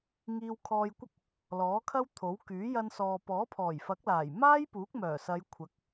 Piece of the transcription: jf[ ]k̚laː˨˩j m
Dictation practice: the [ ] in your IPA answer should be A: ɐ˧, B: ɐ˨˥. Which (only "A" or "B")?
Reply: B